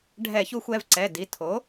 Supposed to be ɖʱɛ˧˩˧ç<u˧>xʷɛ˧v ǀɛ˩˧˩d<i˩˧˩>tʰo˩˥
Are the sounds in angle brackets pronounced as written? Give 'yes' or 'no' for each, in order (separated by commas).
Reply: yes, yes